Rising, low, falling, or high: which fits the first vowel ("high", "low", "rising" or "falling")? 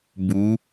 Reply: rising